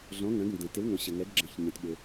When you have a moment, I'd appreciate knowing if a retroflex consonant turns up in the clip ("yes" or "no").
no